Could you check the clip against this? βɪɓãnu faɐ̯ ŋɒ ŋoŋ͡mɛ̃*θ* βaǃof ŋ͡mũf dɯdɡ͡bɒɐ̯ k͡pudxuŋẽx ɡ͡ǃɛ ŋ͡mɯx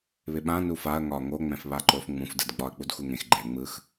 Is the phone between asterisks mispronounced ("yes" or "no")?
yes